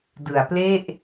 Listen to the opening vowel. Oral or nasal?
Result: oral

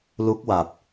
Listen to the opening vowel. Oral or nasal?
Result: oral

